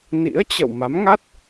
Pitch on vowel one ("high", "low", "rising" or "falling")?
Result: rising